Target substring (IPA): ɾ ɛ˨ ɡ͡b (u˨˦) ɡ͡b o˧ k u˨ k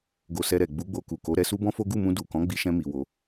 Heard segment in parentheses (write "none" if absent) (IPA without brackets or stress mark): u˨˦